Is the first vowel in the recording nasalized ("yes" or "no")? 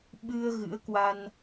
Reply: no